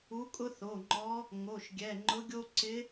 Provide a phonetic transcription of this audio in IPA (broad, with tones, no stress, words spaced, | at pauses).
u˧˥kʼʊ˥θo˩˧˩ŋ͡ǃɔ˧˥ | ŋo˩˧˩ʃɡʲɛ˩˧˩ŋ͡ǃʊ˧˥ɡʲo˥ ǀɪ˧˥